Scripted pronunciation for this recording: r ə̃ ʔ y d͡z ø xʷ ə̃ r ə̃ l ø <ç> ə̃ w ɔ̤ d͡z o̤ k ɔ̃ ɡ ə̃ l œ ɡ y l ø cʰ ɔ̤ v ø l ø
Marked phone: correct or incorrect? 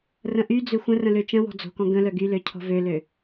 incorrect